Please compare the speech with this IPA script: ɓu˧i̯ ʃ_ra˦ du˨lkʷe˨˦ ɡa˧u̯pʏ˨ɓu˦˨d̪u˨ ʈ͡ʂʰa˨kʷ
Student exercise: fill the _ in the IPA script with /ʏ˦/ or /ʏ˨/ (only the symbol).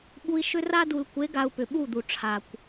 ʏ˦